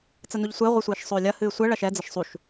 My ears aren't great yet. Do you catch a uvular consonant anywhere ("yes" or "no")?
yes